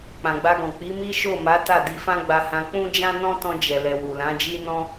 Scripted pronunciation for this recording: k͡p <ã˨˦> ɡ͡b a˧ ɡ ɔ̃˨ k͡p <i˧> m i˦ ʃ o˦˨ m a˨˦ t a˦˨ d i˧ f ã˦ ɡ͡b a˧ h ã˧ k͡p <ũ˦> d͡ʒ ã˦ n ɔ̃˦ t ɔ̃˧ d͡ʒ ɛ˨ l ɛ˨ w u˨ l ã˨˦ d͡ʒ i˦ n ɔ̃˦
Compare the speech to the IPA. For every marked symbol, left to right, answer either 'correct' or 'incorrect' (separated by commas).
incorrect, incorrect, correct